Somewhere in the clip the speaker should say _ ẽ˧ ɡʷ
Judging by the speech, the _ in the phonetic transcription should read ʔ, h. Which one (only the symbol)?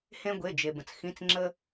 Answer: h